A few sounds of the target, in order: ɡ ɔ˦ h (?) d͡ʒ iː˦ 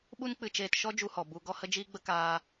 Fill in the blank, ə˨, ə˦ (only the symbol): ə˦